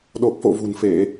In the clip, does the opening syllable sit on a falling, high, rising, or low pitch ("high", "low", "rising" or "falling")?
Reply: low